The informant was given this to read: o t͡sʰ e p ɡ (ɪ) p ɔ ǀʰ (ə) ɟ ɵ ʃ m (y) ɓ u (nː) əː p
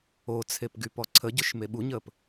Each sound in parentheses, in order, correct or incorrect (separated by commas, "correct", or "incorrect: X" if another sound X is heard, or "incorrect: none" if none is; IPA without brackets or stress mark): incorrect: y, correct, incorrect: e, incorrect: ɲ